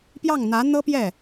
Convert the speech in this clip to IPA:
p j ɑ˥˩ ŋ n̪ ä˧˥ n̪ ɤ˥ p j ɛ˥˩

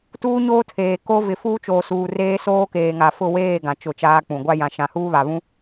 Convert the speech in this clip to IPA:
t uː˦ ɲ oː˦ tʰ eː˨ k o˦ v ɪ˨ f uː˦ t͡ʃ oː˨ s uː˨ r eː˦ s oː˦ k eː˨ ŋ a˨ f ʊ˦˨ w eː˦˨ ɡ ã˨ t͡ʃ ʊ˦˨ t͡ʃ aː˦ k͡p ũ˨ ɡʷ a˦ j ã˨ ʃ ã˨ h uː˦ β a˨ β ũ˦

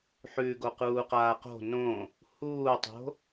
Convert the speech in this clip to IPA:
ħ ʉ ɡ o q uː q aː q o̤ n õ | h uː tˤ o̤

